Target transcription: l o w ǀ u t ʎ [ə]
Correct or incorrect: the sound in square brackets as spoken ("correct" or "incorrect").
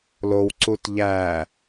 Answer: incorrect